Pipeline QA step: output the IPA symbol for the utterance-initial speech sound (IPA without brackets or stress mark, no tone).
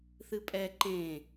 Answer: θ